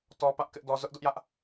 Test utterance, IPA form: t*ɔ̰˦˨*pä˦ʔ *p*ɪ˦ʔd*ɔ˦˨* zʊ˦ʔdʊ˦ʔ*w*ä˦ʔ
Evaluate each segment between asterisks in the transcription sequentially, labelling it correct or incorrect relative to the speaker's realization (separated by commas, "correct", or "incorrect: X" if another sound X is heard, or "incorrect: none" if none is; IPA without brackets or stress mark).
incorrect: ɔ˦, incorrect: k, incorrect: ɔ˦, incorrect: j